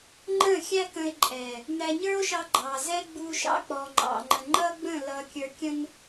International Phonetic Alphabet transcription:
ŋ͡ǃ ə̃˦˨ xʲ æ˦ k ə̃˧ e̯ ǃʼ ɛ˨ | n æ˧ ɲ ə˞˦ o̯ ʃ ɑ˧ ɡ͡ǃ ɑ˨ z ɛ˦ ɡ͡b u˧ ʃ ɑ̰˦ k͡p ɔ˨ ŋ͡ǃ ɑ̰˨ ŋ͡ǃ ə̃˨ ŋ͡ǃ ʌ˦ ɡ͡b ə̃˦˨ l ʌ˧ kʲ ə˞˧ kʲ ə̃˦ n

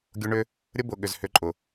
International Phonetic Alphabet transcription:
ɡʲ ʊ˦ ɳ ʏ˦ | ɾʲ ə˦ b ʊ˨ ɠ ʏ˨ z h ʏ˨˦ ǃʼ ʊ˨

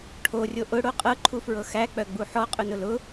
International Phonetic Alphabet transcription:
ʈʰ o rʲ o ʔ ʊ ɽ o qʼ ɤ ǃʰ u f ɹ ɤ x æ k͡p œ ɡ͡b u ħ ɔ qʼ ʊ n ʊ l ʊ

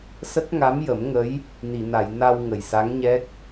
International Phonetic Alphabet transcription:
s ə˦˥ k̚ ŋ a˧˥ m j ə˨˩˦ m ŋ ə˧˥ j | n i˨˩˨ n a˨˩˨ j n a˧ w ŋ ə˨˩ j s a˧˥ ŋ ɲ ɛ˦˥ k̚

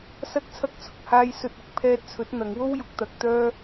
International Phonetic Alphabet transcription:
s ɐ˥ k̚ t͡sʰ ɐ˥ k̚ t͡sʰ ʊ˨˥ k̚ h aː˥ j s ɵ˧ t̚ ɪ˨ k̚ pʰ ɛː˧ t̚ t͡sʰ ɵ˨˥ t̚ n̪ ɐ˨˧ ŋ w o˥ w j ʊ˨˥ k̚ t̪ ɐ˨˥ k̚ t̪ œː˥

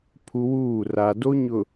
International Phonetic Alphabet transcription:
pʰ u˦ w uː˦˨ r a˨ d o˦ ɲ ʊ˨

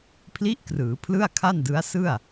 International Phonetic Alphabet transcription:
pʰ l i˦˥ ʔ k r ɯː˩˦ pʰ l ɯ˥˩ a̯ kʰ a˥˩ n d ɯ˦˥ a̯ s ɯ˥˩ a̯

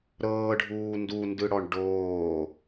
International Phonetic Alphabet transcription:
ɾ ɤː ɖʱ uː n d u n d ɯ ɽ ɔ ɳ ɖ oː

